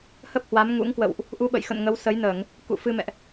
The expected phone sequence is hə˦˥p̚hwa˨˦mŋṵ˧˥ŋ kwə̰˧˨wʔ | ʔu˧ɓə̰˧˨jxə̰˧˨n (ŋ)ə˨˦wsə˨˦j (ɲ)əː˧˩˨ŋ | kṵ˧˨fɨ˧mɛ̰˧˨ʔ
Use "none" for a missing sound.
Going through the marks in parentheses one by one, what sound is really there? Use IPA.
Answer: ŋ, n

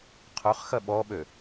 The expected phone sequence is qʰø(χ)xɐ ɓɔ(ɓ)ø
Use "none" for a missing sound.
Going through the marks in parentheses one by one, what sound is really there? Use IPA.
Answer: χ, ɓ

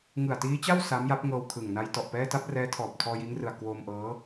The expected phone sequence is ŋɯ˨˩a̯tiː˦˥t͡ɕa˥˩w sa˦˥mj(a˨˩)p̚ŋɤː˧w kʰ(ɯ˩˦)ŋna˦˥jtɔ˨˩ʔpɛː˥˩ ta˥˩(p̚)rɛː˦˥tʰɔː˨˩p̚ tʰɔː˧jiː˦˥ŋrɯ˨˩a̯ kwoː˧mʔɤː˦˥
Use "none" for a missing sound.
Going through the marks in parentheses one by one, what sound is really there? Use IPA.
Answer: a˦˥, ɯ˨˩, p̚

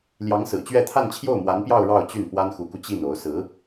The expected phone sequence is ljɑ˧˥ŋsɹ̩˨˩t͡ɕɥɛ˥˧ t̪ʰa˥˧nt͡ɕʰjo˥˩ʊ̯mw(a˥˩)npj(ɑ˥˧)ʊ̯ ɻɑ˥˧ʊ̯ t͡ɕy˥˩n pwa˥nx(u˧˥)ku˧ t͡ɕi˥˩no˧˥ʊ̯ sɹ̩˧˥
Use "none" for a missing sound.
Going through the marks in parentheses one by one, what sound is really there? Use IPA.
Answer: a˧˥, ɑ˥˧, u˧˥

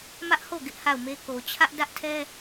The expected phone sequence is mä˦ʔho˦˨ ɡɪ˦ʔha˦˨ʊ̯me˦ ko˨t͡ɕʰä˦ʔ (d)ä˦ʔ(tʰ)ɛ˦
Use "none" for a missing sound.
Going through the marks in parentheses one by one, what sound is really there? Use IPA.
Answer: d, tʰ

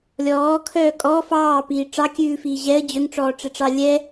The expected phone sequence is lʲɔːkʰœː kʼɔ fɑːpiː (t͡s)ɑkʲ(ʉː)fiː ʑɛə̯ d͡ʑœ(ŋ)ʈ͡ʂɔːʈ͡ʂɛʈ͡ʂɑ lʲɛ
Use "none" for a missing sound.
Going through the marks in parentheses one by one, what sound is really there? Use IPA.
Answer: ʈ͡ʂ, ʉː, ŋ

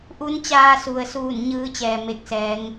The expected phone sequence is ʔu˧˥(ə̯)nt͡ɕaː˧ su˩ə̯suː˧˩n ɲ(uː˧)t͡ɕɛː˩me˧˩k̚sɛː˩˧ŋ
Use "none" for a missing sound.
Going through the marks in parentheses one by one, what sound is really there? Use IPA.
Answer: none, ɯː˧

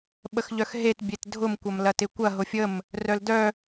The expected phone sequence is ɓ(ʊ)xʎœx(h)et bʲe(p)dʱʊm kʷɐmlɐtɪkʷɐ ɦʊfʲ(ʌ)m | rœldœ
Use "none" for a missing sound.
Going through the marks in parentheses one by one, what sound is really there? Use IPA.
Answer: ə, ɦ, t, ə

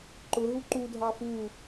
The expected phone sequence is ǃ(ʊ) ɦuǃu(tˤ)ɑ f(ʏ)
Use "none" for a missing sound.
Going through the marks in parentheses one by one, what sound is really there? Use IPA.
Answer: ʊ, dʱ, u

